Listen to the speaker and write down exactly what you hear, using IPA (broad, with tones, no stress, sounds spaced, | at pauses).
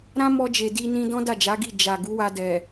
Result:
ɾ ã˦ m ɔ˧ d͡ʒ e˨ d i˧ n ĩ˧ d ɔ̃˦ d a˦˨ d͡ʒ a˨˦ ɡ i˦˨ d͡ʒ a˨ ɡ u˨˦ w a˧ d ɛ˨